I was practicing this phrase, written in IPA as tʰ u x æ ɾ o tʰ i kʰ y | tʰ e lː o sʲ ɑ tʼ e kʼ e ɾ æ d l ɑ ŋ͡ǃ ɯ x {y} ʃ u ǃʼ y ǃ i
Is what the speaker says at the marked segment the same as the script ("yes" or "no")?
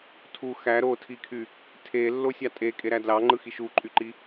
no